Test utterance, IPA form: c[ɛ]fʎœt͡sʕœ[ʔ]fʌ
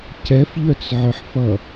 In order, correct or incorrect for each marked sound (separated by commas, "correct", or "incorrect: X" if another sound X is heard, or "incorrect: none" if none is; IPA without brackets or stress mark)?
correct, incorrect: ħ